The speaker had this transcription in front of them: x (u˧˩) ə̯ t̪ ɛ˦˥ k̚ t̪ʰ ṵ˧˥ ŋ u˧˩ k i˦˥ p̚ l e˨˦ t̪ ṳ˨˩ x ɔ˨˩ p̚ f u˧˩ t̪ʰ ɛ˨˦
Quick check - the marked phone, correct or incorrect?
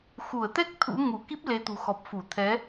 correct